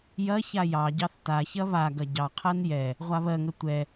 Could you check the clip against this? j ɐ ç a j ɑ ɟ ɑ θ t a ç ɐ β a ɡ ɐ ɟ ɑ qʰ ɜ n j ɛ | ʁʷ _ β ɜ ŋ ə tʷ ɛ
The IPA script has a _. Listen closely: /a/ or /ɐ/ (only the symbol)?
a